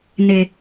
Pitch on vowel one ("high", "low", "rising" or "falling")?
low